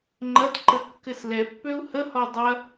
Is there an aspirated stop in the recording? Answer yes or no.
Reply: no